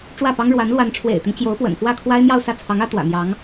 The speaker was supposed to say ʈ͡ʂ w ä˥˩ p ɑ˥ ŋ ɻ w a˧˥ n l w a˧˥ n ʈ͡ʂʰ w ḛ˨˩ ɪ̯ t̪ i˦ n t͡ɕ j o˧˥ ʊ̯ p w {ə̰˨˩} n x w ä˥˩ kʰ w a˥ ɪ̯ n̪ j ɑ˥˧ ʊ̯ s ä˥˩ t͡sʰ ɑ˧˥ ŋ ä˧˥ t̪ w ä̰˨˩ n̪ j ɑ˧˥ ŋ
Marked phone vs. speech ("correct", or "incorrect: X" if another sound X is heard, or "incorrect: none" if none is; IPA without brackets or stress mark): correct